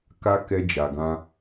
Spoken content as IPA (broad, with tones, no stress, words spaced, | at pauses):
ka˧ kɛ˧ d͡ʒa˨ɡã˧